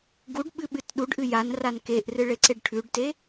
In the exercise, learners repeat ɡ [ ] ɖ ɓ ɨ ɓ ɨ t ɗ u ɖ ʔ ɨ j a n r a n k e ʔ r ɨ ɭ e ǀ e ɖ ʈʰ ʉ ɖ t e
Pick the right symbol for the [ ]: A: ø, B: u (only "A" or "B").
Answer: B